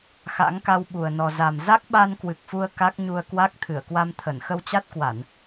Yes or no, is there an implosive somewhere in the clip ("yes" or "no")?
yes